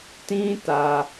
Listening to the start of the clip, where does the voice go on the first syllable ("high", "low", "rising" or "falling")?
high